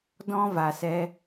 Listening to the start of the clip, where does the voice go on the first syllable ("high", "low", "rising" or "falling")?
high